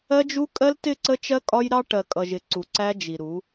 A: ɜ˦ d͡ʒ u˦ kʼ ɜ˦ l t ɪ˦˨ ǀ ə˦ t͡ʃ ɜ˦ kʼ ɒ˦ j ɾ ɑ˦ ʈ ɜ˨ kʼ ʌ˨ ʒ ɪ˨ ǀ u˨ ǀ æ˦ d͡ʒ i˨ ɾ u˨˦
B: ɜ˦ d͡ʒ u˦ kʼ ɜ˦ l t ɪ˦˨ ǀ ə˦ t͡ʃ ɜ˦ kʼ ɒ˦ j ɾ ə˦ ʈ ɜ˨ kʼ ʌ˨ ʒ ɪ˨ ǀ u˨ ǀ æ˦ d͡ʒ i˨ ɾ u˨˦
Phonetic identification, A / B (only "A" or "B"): A